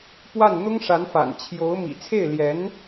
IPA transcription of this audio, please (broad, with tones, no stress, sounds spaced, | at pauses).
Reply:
p w a˥˩ n n̪ ʊ˥ ŋ ʂ a˧˥ n f a̰˨˩ n t͡ɕʰ j o˧˥ ʊ̯ m ḭ˨˩ t͡sʰ e˥˩ ɪ̯ l j ɛ˧˥ n